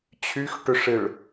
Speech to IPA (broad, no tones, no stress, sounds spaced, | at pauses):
t͡ɕʰ y x ʈ ʏ ʂ ɪ ɭ